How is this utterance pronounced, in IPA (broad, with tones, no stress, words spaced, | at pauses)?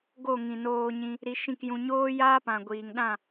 ɡo˦˨ŋĩ˨noː˧ɲĩ˧ | ɾi˧ʃĩ˦˨kjũ˧ ɲoː˦jaː˦pã˨ ɡʷiː˨ŋɗã˦˨